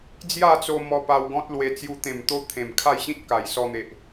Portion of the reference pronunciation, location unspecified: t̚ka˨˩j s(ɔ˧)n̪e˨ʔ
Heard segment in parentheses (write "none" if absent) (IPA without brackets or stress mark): ɔ˧